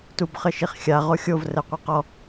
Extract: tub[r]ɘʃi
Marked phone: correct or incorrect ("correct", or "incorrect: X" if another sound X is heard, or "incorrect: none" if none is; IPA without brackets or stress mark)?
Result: incorrect: χ